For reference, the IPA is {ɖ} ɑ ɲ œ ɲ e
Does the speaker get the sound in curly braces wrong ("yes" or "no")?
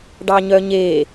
no